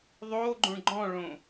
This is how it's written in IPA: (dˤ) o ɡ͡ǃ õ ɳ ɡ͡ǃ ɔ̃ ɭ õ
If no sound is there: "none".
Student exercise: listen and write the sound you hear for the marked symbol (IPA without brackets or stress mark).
ðˤ